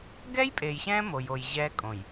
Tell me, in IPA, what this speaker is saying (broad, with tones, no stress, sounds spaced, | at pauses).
ɡ ɛ˦ j pʼ e˨ j ɕ ɛ̃ː˦ m o˦ j o˦ j ʑ ɛ˦ kʼ õ˨ j